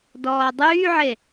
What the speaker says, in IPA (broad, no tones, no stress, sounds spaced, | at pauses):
d ɔː dˤ yː ʕ e